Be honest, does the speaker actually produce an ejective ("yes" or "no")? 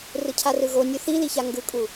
yes